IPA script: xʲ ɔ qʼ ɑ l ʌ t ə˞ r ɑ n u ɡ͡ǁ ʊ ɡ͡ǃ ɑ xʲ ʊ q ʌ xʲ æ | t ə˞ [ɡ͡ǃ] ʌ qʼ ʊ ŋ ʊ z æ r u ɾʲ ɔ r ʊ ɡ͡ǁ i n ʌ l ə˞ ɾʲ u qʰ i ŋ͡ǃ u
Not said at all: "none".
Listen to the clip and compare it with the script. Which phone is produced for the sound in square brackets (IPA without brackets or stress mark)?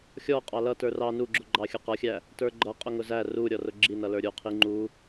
ɡ͡ǃ